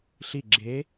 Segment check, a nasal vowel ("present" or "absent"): absent